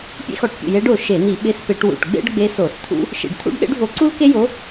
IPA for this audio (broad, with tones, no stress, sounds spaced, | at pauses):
pʲ ḛ˥ x ɔ˧˩˧ ʈ pʲ ṵ˧˩ j e˧˥ ɖ o˧˩ ʃ e˧˩˧ n̪ i˧˩˧ ɓ ɪ˧˥ s p ɪ˧˩˧ ʈ w ṵ˧˩ ʈ ɡ͡b ḛ˥ ɖ ɡ͡b e˧˥ s o˧˩˧ s t̪ʰ ṵ˥ | ʃ ḭ˧˩ ɖ t̪ʰ ṵ˥ ɖ ɗ ḛ˥ ɖ v o˧˥ ǀ u˥ l k e˥ j o˧˥